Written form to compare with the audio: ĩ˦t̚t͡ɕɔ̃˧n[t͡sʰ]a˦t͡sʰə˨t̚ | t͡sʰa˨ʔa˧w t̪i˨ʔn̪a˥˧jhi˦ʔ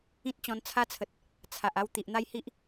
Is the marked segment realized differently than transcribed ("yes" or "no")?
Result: no